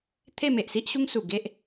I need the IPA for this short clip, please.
t̪ʰ e˥˧ m e˨ ʔ s i˦ ʔ ɕ u˦ ŋ s u˨˩ ɡ e˦ ʔ

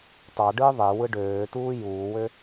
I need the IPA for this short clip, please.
t ɑ ɖ ɯː ðˤ e w ɯ ɖ øː t uː j uː w ø

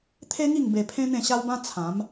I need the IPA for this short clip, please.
t̪ʰ e˦ ŋ i˥˧ ŋ b e˧ pʰ ẽ˦ n̪ ẽ˥˧ ɕ a˦ w b ã˦ t͡sʰ ã˨˦ m

